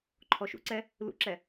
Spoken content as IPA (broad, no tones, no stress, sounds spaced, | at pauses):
ǃʰ ɔ ʃ ṵ ǀ ɛ | l ṵ ǁ ɛ